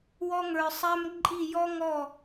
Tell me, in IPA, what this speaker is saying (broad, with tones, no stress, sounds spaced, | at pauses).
w ɔ˦ ŋ ə˞˧ sˤ æ˦ m ǃʼ i˦˨ j ɔ˦ ŋ ɔ˦˨